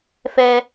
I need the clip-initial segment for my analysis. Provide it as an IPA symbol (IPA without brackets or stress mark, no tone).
f